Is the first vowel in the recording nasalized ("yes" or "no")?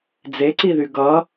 no